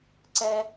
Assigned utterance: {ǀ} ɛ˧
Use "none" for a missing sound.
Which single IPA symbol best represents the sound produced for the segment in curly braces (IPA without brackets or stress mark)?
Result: ǀ